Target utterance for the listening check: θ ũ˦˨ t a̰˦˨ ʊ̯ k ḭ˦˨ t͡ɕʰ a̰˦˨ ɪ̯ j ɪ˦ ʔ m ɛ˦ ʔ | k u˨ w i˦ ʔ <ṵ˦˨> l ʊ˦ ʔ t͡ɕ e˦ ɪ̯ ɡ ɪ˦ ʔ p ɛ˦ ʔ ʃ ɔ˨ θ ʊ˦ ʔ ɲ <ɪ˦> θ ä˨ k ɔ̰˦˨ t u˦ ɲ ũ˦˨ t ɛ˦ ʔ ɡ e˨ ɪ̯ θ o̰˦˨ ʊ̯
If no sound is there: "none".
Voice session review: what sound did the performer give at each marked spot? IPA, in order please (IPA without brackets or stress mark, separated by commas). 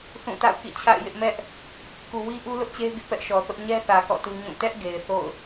u˦, ɛ˦